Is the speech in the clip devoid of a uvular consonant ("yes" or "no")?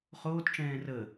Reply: no